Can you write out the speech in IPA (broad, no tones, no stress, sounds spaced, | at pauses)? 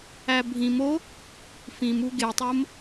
æ bʱ ĩ m o | f ĩ m u ɡ e tˤ o m